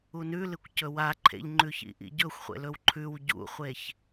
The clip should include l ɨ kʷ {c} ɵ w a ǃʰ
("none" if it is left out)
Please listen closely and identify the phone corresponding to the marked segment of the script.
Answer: c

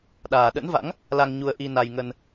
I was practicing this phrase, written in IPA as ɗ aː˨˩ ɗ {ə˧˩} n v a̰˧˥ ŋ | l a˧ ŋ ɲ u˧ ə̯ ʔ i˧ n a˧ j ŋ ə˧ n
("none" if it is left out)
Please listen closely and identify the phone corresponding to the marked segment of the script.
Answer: ə̰˧˥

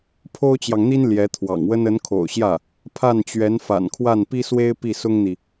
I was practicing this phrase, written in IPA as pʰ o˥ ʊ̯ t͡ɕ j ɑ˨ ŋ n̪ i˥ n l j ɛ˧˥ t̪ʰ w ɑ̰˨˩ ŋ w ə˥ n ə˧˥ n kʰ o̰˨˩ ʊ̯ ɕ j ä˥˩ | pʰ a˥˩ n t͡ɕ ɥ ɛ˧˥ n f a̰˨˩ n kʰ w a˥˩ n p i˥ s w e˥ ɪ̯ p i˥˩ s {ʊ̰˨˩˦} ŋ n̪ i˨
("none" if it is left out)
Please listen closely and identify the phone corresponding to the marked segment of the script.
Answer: ʊ˥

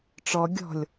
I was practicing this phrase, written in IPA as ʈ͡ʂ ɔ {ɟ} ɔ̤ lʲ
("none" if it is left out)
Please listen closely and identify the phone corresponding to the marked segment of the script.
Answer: ɡʲ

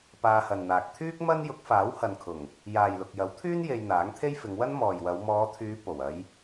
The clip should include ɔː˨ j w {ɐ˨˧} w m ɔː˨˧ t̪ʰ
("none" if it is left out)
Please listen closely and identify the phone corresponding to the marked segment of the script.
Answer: ɐ˨˧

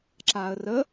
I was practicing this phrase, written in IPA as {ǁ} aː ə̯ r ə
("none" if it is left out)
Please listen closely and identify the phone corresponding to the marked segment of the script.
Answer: ǁ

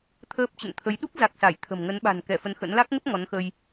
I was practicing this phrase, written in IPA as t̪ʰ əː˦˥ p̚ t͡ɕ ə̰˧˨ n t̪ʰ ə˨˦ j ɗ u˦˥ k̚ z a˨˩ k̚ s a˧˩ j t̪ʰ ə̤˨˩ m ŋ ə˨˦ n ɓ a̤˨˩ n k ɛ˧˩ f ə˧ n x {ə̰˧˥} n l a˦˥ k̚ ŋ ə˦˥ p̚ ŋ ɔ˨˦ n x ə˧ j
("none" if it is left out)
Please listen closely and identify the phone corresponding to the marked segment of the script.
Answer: ə̰˧˥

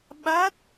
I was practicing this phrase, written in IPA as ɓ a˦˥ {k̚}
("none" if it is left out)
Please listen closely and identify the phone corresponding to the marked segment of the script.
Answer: t̚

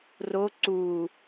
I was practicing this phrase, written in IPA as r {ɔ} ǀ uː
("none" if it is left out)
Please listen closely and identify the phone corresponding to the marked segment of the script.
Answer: o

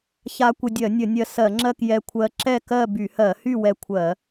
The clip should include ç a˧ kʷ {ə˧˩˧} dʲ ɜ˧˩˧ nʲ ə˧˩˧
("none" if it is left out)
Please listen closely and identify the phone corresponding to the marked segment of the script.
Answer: ə˧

